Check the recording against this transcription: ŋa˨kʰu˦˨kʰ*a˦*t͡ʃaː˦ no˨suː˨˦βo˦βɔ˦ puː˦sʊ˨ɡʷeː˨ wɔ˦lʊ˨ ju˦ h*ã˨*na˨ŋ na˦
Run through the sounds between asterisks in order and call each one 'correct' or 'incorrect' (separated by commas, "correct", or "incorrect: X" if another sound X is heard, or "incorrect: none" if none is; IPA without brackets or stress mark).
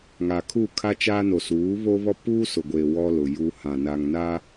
correct, correct